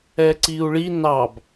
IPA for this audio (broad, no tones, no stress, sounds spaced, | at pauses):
ɛ ǀ i u̯ ɭ i n ɑ b